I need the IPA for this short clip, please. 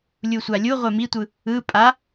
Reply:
lʲ u sʷ a lʲ u ʁʷ e m i tʷ ɯ | ɯ pʼ a

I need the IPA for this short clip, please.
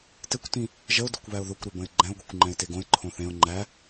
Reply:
t ɘ kʷ t ĩ | ʒ ə ʊ̯ d ɘ kʷ β æ ʊ̯ ð o kʷ ɾ e b ə̃ ɪ̯ ɡ͡ǃ ɛ̃ ʊ̯ ɡʷ ɛ kʷ ŋ͡ǃ ɛ̃ ɪ̯ t e ɡ õ ɪ̯ ǃʰ õ θ ẽ ʊ̯ ŋ͡ǃ æ

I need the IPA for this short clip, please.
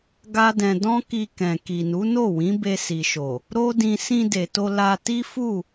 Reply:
ɡ a˦ d ɛ̃˧ d ɔ̃˦ k i˧ k ɛ̃˨ k i˨ n u˨˦ n o˦˨ w ĩ˨˦ b e˧ s i˨ ʃ o˨ | ɾ o˦ d ĩ˧ s ĩ˧ d e˨ t o˧ l a˧ t i˦ f u˦˨

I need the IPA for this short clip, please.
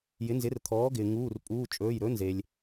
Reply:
j ɪ˩˥ n z ɪ˩˥ r t̪ʰ ɔː˩˥ ɡ ɪː˩ ŋ uː˩˧˩ r pʼ uː˩˧˩ t͡ʃʼ ɵː˩˧˩ j ɾ ɵ˩˥ n z e˩ lʲ

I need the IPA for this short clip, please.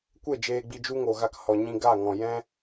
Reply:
kʷ e˦˨ d͡ʒ eː˧ ɡ͡b i˧ d͡ʒ u˦ ŋ o˨ ɣ a˧ k h ɔ˨ ɲ ĩ˧ ɡ a˦˨ ŋ ɔ̃˨ j ɛ̃˦

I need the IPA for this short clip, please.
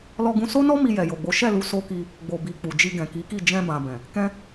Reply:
l ɔ˧ ɡ ũ˧ s o˦ n ɔ˦ m i˧ j ɛ˨ j o˨ ɡ͡b o˨˦ ʃ ɛ˦˨ l u˨˦ s o˦ k i˧ | ɡ͡b o˨ b i˨ k͡p u˨ d͡ʒ i˧ ɡ ɛ̃˨ k i˨˦ k i˦˨ d͡ʒ ɛ̃˧ b ã˨ b ɛ̃˨ | k ɛ̃˧

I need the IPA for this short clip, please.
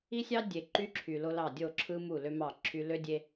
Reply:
i˦ sʲ ɑ˦ dʲ e˨ ǃ y˦ ǁʰ y˨ l o˦ l ɑ˦˨ dʲ o˦˨ ǁʰ ɯ˦ m u˦˨ l ø˦ m ɑ˦˨ ǁʰ y˦ l ø˦ dʲ e˦

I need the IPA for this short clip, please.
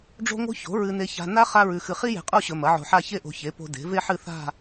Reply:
ɖ͡ʐ o̤˥ ŋ o̤˥ ç o̤˩˥ ɹ ɨ˧ n e˧ ç a̤˧ n a˥ χ a˥ ɹ ʉ˧ x ɨ˧ χ i˥ j e̤˧ qʼ o˥˧ ɕ ɵ˧ m ɐ˩˥ ʕ o̤˧ ħ a˥˧ ç e˥˧ ʔ o̤˧ ç e˩˥ p o̤˧ d e̤˩˥ v e˥ ħ ɨ˥˧ θ a̤˥˧

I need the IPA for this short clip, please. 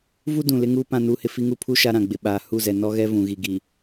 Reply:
v u˦ d ũ˨ l ɪ˦ ŋ uː˦ p ã˦ n uː˦ h ɪ˦ f i˦ ŋ u˦ pʰ u˦ ʃ a˦ ɾ ã˨ ɡ͡b ɪ˨ ɓ aː˨ h u˦˨ z ɛ˨ n ɔ˦ ɣ ɛ˦ v ũ˨ ɣ i˨ ɡ i˨

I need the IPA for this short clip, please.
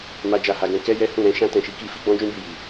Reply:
m a˦ d͡ʒ a˦˨ h a˧ ɡ ɛ̃˧ k ɛ˦ j ɛ˦ h ũ˦˨ ɾ ɛ̃˧ ʃ ã˦ t ɛ̃˦˨ ʃ i˧ k i˦ f i˦ ɡ͡b ɔ̃˦ d͡ʒ ũ˦ b i˧ j i˨

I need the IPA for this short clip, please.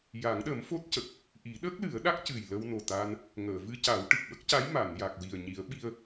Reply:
j a˨˩˦ ŋ ɗ ə˨˩˦ m f o˦˥ t̚ c ə˨˩ k̚ | ʔ i˨˩˦ ɗ ə˦˥ k̚ l ɨ˨˩˦ ə̯ ɗ a˦˥ k̚ c ɨ˨˩ j l ə˧ w n o˨˩ t̪ aː˧ n | ŋ əː˨˩˨ v ɨ˧ c a˨˩˦ w ʈ ɨ˨˩ k̚ ɓ ə˦˥ k̚ c a˧˥ j m a˨˩˨ n j a˨˩ k̚ w i˨˩ ə̯ ɲ i˨˩˦ ə̯ ɓ i˧ ə̯

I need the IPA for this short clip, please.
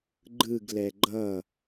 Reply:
ɡ͡ǃ ɯ ɡ l ɛ ɡ͡ǃ ʌ

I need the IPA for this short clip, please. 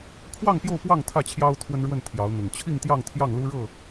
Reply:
kʰ w ɑ˥˨ ŋ p j o˥˨ ʊ̯ p w ɑ˥˨ ŋ t̪ʰ ä˥˨ t͡ɕʰ j ɑ˦ ʊ̯ t̪ʰ w ə˦ n ɻ w ə˥˨ n t̪ʰ j ɑ˨˦ ʊ̯ n̪ ʊ˨˩ ŋ t͡ɕʰ i˥˨ ŋ t̪ j ɑ˥˨ ŋ t̪ʰ j ɑ˥˨ ŋ l u˦ ɻ ɤ˥˨

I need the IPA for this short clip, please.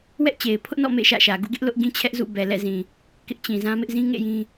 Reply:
w ɛ˦ ʔ t͡ɕ e˨ ɪ̯ pʰ ʊ˦ ʔ n ɔ̰˦˨ m ḛ˦˨ ʃ ä̰˦˨ ʃ ä˨ ɡ ṵ˦˨ ɡ ɪ˦ ʔ l ʊ˦ ʔ ɡ ĩ˦ t͡ɕʰ ɛ˦ ʔ z ṵ˦˨ b ɛ˨ l ɛ̰˦˨ z ĩ˨ | k ɪ˦ ʔ t͡ɕ ĩ˨ z ã˦ m ɪ˦ ʔ z ĩ˦ ŋ ḛ˦˨ j ĩ˦

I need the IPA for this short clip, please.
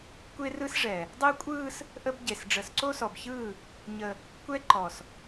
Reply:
kʷ e˦ r ɯ˦ s ʐ ɛ˨ | dˤ e˦ kʷʼ ɯː˦ s | ʔ ə˦ b ɟ e˨ s ɖ͡ʐ ə˨ s ǀ o˦ s ɔ˨ b ç ɯː˦˨ | ɲ ə˦ | kʷ ɛ˦ ǃ ɔ˨ s

